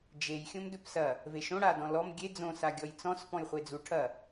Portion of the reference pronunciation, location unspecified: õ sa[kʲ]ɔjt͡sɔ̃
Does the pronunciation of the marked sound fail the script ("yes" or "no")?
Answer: yes